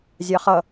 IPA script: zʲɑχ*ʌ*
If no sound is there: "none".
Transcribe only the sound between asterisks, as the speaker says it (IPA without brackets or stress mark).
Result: ʌ